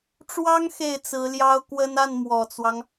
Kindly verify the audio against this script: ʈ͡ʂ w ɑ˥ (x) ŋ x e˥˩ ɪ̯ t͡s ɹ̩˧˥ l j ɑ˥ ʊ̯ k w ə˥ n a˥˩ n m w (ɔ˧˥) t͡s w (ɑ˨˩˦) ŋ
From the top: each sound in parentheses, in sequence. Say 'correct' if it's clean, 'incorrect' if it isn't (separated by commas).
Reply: incorrect, incorrect, incorrect